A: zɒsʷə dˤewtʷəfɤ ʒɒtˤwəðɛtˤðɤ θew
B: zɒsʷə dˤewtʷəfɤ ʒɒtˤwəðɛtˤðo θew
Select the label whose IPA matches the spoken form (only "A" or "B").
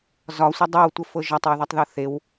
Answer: A